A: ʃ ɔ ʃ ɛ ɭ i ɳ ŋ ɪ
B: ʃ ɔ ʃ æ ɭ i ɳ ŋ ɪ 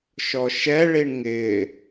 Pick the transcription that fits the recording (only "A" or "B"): A